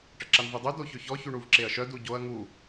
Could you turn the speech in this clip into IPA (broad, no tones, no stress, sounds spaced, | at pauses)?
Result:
ʈ ə ǁ a n v y dˤ y d o ç ø ç ɔ ç y ɳ u v ǁ e ɐ̯ ʃ œ d u ɟ o ɐ̯ ŋ u